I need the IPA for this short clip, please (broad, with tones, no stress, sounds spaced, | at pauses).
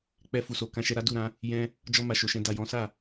k͡p ɛ˧ f u˨ s o˨ k ã˧ ʃ ɛ˧ ɾ a˦ d u˦˨ ɾ ã˨˦ | j ɛ̃˧ | d͡ʒ ɔ˧ m a˨ ʃ o˨ ʃ ɛ̃˧ d a˨ j ɔ̃˨˦ s a˦˨